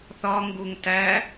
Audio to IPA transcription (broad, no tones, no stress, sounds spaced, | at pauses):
θ ɒ ŋ ɡ u ŋ t æ